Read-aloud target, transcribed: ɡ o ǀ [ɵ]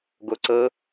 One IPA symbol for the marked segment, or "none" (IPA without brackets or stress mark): ɤ